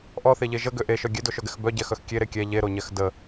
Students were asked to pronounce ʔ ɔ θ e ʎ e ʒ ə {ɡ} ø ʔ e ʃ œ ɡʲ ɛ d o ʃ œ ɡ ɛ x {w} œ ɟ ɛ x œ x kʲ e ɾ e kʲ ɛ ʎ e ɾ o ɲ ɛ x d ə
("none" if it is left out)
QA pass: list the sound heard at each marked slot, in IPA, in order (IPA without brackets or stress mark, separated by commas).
ɡ, b